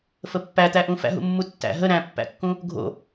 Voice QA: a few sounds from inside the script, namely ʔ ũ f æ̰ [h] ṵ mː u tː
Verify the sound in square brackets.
incorrect: ɦ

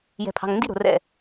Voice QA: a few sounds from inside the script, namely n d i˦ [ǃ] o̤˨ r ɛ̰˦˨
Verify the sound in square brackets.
incorrect: ɾ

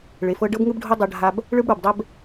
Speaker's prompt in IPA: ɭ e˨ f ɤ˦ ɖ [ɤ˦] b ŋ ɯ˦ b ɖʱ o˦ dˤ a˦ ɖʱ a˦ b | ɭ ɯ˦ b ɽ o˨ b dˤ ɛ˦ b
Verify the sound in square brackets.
correct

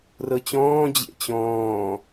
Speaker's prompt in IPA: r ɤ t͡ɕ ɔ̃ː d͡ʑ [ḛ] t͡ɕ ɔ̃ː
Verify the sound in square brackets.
correct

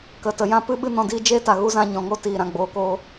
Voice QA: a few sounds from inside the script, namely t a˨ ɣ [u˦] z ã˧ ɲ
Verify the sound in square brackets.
correct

